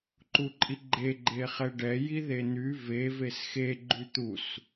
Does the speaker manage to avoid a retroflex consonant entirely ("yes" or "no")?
no